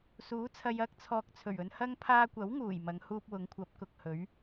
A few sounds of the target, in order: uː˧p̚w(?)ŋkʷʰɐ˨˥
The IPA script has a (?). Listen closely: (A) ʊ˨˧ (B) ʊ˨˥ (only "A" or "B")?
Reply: A